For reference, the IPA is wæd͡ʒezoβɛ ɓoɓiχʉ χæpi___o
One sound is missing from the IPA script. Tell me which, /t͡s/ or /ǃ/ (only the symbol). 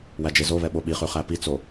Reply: t͡s